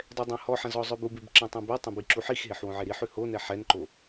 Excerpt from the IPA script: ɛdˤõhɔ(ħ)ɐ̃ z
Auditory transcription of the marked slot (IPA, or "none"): ħ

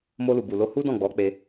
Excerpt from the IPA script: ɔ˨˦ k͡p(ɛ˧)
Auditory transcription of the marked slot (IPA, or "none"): e˧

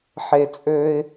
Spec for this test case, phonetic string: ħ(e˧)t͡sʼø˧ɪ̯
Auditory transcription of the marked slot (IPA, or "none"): e˩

